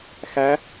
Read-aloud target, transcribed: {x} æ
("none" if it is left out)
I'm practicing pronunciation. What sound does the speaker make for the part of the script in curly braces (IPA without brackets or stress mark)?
x